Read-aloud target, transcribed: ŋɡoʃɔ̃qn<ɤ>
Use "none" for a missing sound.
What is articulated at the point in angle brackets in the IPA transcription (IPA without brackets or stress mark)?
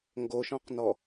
ɔ